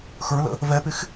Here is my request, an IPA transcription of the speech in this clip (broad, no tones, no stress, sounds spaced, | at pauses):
x ə˞ l ə̰ | v ɛ p ɪ x